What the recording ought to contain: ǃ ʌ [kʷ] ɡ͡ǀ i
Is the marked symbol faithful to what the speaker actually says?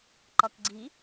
no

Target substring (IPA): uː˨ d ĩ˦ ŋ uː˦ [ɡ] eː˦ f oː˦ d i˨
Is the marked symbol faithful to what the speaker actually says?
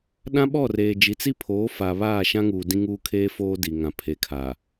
no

